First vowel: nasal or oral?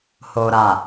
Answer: oral